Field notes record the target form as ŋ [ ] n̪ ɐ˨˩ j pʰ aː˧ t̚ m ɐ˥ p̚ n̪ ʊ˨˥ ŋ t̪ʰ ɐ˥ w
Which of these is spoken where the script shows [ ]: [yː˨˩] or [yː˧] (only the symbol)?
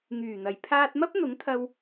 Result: yː˨˩